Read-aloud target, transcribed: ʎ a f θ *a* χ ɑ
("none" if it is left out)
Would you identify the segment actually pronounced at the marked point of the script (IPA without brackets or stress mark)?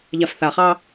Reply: a